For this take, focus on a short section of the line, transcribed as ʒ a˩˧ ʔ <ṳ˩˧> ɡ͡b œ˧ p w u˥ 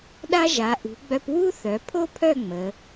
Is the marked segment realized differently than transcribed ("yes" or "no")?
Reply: no